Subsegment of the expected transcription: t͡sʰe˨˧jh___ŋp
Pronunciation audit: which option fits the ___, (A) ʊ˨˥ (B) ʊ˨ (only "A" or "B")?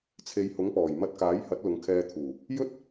A